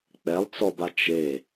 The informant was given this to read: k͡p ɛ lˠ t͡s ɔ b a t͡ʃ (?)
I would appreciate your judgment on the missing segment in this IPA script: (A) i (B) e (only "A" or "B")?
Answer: B